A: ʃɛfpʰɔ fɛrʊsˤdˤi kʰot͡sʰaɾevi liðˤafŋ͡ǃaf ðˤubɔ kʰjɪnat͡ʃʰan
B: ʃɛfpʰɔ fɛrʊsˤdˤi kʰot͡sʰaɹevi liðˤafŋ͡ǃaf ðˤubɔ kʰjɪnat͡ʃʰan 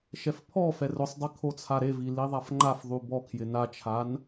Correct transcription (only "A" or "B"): A